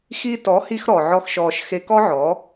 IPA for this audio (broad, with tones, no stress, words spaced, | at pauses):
xi˧tɔ˩˥hi˧x ɾɔ˩ʕɔ˥xʃɔː˧ʃ xe˧kɔ˥ʕɔː˩˥